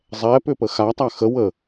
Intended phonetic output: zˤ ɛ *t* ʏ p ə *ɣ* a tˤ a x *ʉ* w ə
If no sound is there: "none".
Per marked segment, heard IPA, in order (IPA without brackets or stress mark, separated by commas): p, x, ə